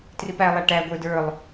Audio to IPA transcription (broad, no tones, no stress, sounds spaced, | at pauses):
t r ɪ p æ lˠ æ ʈ æ ɡʷ ə˞ d ə˞ lˠ